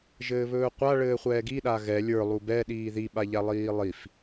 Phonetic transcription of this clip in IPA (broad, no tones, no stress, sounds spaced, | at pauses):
ʒ ɘː β ɵː qʷ a ɭ ɘː χʷ ɛː ɡ i ɗ a ɣ ɛ lʲ ə˞ lˠ u b ɛ ɗ iː ð i ɓ a ʎ a lˠ iː lˠ i f